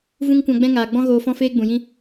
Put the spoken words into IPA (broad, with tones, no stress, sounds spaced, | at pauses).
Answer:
v ũ˦ ŋ kʷ ã˧ ɡ͡b ɛ̃˦ ŋ aː˨ ɡ͡b ɔ̃˦ ɣ oː˧ f ɔ̃˦ f eː˦ ɡ͡b ũ˨ j ĩ˦